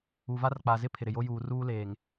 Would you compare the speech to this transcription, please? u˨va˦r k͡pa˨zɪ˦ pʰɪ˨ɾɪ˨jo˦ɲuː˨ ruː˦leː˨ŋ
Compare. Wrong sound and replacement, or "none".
ɲ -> j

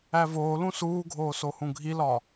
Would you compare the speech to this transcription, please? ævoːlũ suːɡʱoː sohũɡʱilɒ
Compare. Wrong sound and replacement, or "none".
none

